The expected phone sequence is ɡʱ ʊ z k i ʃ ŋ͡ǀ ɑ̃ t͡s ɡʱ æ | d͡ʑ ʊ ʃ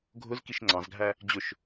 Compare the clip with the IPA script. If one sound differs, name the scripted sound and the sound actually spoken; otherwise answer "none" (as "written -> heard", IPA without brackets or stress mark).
t͡s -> z